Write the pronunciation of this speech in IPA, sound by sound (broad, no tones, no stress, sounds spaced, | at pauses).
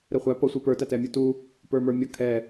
ɾ ɛ χʷ æ p ʌ sʷ i p ə˞ t æ t ɛ mʲ ə˞ t u | p ə˞ m ə˞ mʲ ʌ kʰ ɛ